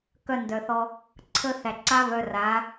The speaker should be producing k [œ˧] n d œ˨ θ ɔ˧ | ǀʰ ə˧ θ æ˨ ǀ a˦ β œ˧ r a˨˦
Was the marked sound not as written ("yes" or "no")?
no